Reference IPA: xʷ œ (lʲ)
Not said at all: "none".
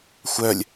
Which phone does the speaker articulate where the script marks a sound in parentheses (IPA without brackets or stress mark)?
lʲ